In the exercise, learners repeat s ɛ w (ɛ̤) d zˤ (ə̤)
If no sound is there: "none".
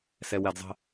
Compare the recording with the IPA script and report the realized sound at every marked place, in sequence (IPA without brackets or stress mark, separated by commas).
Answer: ɛ, ə̤